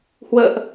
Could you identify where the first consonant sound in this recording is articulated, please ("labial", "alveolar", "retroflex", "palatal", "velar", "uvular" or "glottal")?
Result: glottal